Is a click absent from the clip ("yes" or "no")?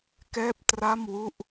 yes